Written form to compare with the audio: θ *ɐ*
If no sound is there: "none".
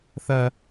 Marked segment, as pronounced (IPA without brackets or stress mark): ɐ